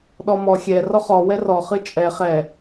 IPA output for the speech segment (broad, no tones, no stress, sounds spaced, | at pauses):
ɗ ɔ m ɔ xʲ ɛ r ɔ χ ɔ w ɛ r ɔ χ ɨ t͡ʃʼ ɛ χ ɛ